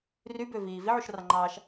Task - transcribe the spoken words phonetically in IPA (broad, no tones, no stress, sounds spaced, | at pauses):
r y b ø v iː v i ʕ u ʃ r ɑ ŋ͡ǃ ɑː ʃ